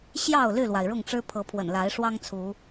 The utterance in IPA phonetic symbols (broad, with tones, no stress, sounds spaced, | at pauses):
ɕ j ɑ˥˨ ʊ̯ l y˥˨ l w a˩ ɪ̯ ɻ ʊ˥˨ ŋ ʈ͡ʂ ɻ̩˦ pʰ ɤ˨˦ pʰ w ə̰˨˩ n l a˨˦ ɪ̯ ʂ w ɑ˦ ŋ t͡sʰ u˨˦